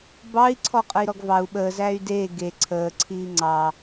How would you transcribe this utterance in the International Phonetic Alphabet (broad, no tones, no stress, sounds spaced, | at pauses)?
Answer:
b ɑ i̯ ǀʰ ɔ qʼ ə i̯ ɾ ɔ ɡ v ɑ u̯ ɓ əː z æ y̯ d eː ɡ e ǀʰ əː ǀʰ iː ŋ͡ǀ ɑ